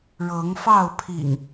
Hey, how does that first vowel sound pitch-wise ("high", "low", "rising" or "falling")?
rising